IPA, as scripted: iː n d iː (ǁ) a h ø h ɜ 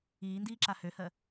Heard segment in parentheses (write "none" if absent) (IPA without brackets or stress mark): ǁ